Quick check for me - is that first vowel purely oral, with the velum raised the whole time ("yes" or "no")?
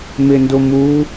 yes